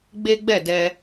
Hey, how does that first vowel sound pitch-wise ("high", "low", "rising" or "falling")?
high